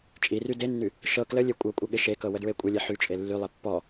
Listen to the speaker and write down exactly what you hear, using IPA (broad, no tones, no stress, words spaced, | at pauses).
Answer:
t͡ʃʼiry denːy | ʃɤ kləlʲe kʷʼɤkʷʼə ɠɪʃekɤ wədɹekʷʼəlʲe ħyt͡ʃʼe lːylˠe pːɔ